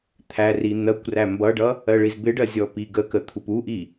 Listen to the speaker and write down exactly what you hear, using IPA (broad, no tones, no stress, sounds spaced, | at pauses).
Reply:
t̪ʰ æ r i n̪ ɜ kʷ r æ m b ʌ ɖ ʌ | ɜ ɭ i z b ɪ ɖ ɜ zʲ ɔ p i ɡ ə k ə t̪ʰ u p u ʔ i